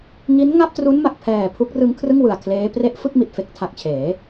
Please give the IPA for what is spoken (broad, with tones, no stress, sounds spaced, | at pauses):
ŋ i˦˥ n ŋ a˥˩ p̚ t r u˦˥ n m a˨˩ k̚ pʰ ɛː˨˩ pʰ u˦˥ k̚ r ɯ˦˥ ŋ kʰ r ɯ˥˩ ŋ w ɯ˨˩ a̯ kʰ l eː˦˥ p r e˦˥ ʔ f ɯ˥˩ k̚ m i˨˩ t̚ f e˦˥ k̚ tʰ a˨˩ k̚ t͡ɕʰ eː˩˦